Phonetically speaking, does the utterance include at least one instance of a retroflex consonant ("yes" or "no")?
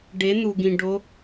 yes